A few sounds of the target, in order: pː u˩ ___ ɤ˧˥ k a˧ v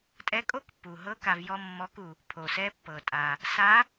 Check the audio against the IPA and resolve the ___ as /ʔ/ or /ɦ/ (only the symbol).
ɦ